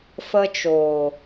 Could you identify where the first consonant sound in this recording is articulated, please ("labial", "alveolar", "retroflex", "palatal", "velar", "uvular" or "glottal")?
labial